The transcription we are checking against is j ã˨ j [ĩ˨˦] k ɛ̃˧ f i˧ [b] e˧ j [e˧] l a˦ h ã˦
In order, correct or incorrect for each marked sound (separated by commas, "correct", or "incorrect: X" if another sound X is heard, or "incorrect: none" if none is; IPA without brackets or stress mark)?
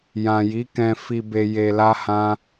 incorrect: i˨˦, correct, correct